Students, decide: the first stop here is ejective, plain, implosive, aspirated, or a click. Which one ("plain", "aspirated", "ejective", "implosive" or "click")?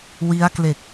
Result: plain